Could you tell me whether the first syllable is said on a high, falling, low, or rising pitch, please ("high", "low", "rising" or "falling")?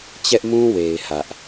high